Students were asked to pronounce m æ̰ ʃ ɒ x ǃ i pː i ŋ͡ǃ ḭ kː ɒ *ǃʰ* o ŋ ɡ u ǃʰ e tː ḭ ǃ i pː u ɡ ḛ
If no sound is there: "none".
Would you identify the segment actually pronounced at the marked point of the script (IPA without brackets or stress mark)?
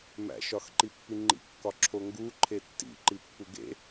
ǁʰ